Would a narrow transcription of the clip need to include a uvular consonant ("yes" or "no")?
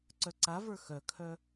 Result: no